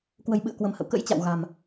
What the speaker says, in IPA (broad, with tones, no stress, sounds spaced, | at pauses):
k w ə̤˨˩ j ɓ ɨ̰˧˨ ə̯ k w ə̤˨˩ m h ə̰˧˨ w k ə̰˧˥ j t͡ɕ a̰˧˨ w ɣ a̤˨˩ m